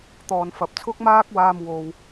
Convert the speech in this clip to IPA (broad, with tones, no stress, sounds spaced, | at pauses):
t̪ ɔː˨ n f ɐ˨ p̚ t͡sʰ ʊ˥ k̚ m aː˥ k̚ w aː˧ m w o˨ w